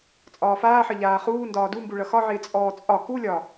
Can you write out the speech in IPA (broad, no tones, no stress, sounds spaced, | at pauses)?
t͡sʼ ɒː f aː ħ ʌ ʎ aː χ uː n d ɒː d u m b u ɭ ʌ x ɒ ʕ ɪː t͡sʼ ɔː t͡sʼ ɒ k u lʲ ɒ